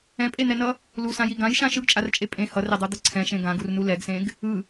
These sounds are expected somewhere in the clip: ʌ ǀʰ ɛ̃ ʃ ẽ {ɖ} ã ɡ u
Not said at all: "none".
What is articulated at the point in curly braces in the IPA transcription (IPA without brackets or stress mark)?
ɡ